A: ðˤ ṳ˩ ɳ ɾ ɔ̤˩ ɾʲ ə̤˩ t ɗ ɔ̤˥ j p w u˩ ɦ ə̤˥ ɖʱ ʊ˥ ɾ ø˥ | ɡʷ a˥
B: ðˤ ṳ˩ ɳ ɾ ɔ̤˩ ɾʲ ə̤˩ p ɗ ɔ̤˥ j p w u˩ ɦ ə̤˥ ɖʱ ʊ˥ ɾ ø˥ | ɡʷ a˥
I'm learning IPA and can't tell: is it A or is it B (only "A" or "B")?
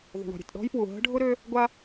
A